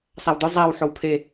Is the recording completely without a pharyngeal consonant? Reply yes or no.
no